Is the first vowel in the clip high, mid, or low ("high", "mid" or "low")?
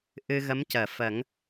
high